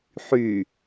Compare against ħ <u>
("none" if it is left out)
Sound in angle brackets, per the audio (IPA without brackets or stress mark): y